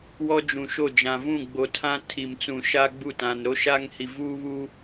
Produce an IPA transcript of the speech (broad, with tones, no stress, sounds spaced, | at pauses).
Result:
w ɔ˦ d͡ʒ ũ˨ ʃ o˦˨ d͡ʒ ã˨ v ũ˦˨ ɡ͡b o˨ tʰ ã˦ tʰ i˨ m t͡s ũ˨ ʃ a˦ ɡ͡b u˦˨ t ã˨ n ɾ o˦ ʃ aː˦ ŋ h i˨ v uː˦ β u˦